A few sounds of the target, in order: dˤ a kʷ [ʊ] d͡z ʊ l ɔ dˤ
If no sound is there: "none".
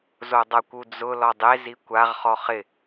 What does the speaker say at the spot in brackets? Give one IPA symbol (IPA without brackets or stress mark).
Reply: u